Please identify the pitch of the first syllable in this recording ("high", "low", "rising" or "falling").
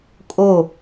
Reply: falling